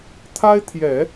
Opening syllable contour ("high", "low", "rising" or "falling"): high